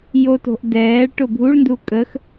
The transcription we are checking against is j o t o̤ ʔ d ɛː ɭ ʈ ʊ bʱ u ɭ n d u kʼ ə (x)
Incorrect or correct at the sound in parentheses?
correct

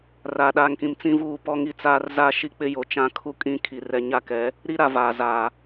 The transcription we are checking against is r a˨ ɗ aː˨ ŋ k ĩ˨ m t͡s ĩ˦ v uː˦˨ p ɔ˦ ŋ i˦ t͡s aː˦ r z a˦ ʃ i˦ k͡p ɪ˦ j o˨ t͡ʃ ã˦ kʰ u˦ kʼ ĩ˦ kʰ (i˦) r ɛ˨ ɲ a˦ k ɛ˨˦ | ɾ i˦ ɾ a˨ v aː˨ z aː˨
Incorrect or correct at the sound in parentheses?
incorrect: i˨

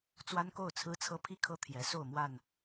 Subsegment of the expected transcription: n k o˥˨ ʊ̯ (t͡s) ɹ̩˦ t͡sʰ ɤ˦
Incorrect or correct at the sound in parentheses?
incorrect: t͡sʰ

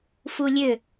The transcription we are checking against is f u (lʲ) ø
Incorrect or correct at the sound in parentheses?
correct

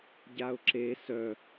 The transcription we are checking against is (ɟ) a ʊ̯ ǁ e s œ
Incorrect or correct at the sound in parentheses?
correct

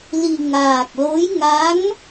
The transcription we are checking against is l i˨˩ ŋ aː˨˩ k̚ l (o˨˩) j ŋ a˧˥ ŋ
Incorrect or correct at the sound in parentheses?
incorrect: o˧˥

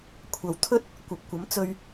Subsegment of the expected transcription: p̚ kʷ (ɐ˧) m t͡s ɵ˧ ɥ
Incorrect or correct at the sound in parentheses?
incorrect: ɐ˨˥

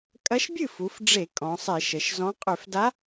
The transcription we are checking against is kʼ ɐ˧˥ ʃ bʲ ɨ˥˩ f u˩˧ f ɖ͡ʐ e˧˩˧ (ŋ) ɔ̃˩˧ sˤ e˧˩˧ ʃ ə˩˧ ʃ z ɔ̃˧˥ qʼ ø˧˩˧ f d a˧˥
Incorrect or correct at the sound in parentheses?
incorrect: kʼ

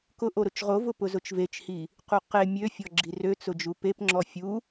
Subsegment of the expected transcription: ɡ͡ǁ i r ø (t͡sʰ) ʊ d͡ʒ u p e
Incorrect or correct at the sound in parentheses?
incorrect: t͡s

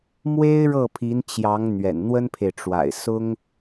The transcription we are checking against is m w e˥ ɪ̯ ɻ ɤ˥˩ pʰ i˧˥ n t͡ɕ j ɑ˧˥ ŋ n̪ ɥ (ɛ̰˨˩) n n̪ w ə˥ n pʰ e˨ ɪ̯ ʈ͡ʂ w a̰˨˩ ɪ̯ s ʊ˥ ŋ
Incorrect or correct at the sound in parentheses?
correct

